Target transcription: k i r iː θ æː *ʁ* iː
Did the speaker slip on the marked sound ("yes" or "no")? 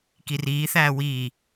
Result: yes